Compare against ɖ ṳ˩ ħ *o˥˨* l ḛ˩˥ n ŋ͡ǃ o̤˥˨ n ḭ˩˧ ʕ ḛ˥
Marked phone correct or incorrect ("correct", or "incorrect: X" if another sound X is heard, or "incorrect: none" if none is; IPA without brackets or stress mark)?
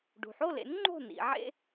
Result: correct